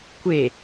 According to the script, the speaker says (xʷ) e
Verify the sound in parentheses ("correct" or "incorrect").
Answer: incorrect